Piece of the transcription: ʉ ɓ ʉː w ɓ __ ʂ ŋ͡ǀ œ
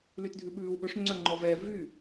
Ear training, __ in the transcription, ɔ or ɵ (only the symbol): ɵ